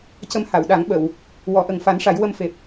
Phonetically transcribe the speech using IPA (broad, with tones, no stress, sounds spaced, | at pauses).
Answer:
c ə˧ m h a˨˩˨ w ɗ a˨˩˦ ŋ ɓ ə˨˩˨ w | w ɔ˨˩˦ ʔ ə˨˩ ŋ f a˨˩˦ n ʂ a˨˩˦ j w ə˧ m f e˨˩ p̚